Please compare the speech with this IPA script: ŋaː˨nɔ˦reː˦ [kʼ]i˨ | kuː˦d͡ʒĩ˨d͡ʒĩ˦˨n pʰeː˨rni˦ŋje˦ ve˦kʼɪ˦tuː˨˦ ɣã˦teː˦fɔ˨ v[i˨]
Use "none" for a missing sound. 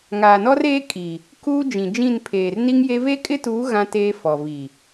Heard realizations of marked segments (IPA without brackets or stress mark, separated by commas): kʼ, i˨